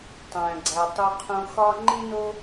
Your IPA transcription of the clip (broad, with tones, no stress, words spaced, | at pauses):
tˤæ̃˩ ɡ͡ǀæ˩ tˤu˨qʰũ˨ xɒ˦ ŋ͡ǃĩ˥no˥